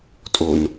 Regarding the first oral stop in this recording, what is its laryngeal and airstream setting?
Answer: ejective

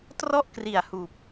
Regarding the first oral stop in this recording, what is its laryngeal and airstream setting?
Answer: plain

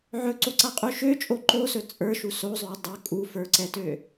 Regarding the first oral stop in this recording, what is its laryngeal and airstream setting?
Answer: click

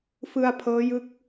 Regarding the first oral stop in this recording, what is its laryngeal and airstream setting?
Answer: aspirated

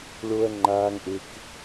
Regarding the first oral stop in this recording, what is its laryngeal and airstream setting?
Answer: click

